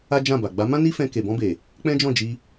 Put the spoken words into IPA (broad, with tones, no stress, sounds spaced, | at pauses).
a˦ d͡ʒ ã˦˨ b a˨ ɡ͡b a˨˦ m ã˦ n i˦ f ɛ̃˧ k e˨ b ɔ̃˧ b e˨ | k͡p ɛ̃˦ d͡ʒ ɔ̃˦˨ d͡ʒ i˧